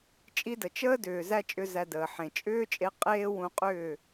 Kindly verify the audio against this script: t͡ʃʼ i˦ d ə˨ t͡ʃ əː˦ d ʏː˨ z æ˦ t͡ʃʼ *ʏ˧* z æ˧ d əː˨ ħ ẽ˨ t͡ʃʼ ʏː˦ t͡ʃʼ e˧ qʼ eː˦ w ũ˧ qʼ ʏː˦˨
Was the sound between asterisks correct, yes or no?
yes